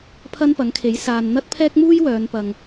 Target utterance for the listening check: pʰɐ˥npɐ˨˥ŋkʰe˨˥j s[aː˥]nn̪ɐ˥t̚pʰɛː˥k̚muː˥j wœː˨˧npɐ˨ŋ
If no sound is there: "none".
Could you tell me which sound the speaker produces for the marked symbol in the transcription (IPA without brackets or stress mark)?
aː˨